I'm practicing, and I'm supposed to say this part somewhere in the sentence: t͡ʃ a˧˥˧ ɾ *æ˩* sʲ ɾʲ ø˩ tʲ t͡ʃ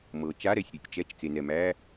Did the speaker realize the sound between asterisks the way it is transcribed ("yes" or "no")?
no